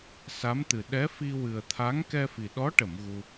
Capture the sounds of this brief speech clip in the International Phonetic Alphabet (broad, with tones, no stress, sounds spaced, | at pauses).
s a˧˥ m t̪ ɨ˨˩ ɗ ɛ˧˥ f i˧ w ɨ˨˩ ə̯ t̪ʰ a˧˥ ŋ k ɛ˧ f i˨˩ ɗ ɔ˧˥ ʈ ə˨˩˨ m ɣ u˧